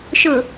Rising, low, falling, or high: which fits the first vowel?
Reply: low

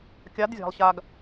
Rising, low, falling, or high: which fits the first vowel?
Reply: rising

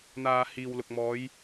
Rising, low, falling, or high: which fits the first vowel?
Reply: low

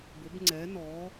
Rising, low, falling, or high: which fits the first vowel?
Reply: rising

